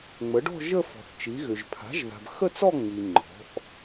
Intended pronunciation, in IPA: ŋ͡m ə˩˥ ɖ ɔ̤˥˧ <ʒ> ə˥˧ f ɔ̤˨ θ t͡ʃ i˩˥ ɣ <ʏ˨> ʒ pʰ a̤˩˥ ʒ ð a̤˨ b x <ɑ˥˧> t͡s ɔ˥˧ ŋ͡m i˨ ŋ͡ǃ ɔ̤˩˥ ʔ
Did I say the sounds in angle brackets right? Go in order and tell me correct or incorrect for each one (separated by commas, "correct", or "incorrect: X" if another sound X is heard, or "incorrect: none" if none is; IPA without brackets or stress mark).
correct, correct, incorrect: ə˥˧